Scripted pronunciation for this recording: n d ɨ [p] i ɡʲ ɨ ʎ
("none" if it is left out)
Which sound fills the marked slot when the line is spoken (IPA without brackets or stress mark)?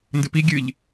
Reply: p